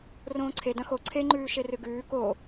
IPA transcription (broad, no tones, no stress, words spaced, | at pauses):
rõːǀʰe dɐ̃xo ǀʰeŋ͡ǃʉː ʃerɨɡʉː ko